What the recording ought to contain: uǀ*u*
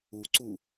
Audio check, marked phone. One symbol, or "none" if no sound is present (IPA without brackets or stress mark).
u